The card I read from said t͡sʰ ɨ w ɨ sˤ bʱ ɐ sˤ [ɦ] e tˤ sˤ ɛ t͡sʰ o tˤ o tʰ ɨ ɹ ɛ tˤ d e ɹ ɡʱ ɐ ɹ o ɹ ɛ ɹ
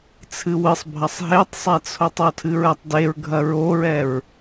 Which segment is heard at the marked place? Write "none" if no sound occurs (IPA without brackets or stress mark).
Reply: ɦ